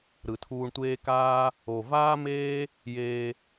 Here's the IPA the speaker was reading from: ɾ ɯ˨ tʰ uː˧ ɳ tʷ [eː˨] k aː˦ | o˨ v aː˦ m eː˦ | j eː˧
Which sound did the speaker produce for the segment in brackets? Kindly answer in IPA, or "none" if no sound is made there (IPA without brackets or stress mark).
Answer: eː˦